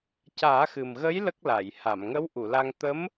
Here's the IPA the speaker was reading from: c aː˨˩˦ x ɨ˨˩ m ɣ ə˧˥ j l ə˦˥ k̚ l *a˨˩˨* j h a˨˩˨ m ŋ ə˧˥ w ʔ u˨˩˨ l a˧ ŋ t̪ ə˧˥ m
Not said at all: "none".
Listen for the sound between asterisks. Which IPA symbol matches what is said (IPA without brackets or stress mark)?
a˨˩˨